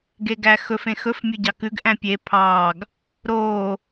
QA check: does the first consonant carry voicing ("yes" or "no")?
yes